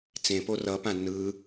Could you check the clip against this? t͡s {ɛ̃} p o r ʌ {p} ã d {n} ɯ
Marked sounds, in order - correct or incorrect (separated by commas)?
incorrect, correct, correct